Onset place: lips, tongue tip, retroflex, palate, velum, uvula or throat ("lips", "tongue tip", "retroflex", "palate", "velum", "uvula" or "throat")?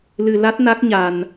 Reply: tongue tip